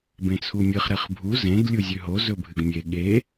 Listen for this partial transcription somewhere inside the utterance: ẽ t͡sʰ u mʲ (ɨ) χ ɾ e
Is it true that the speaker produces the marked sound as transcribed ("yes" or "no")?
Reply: yes